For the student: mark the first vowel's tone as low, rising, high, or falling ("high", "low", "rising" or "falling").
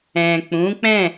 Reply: low